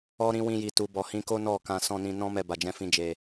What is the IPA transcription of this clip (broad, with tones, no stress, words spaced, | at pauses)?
ɔ˧ɾĩ˧ wĩ˧ji˨tu˨ bɔ˨hĩ˨˦ko˦ nɔ˦˨kã˧ sɔ̃˧nĩ˧nɔ̃˦mɛ˧ ba˨d͡ʒɛ̃˧fĩ˧ d͡ʒe˧